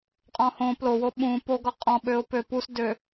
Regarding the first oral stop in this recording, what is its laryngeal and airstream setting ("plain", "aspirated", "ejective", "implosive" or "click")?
ejective